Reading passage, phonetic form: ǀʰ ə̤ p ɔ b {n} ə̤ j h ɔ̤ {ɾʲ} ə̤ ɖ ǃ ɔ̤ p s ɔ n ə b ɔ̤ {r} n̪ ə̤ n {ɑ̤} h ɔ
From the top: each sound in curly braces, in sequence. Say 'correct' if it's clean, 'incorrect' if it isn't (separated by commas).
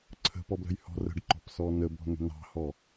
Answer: incorrect, incorrect, incorrect, correct